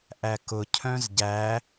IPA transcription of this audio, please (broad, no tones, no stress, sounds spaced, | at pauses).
ʔ æ k ʊ cʰ œ̃ z ɟ æ